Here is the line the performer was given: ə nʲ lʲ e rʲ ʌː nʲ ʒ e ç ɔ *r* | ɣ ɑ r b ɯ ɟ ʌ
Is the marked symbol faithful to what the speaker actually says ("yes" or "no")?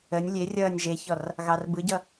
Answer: yes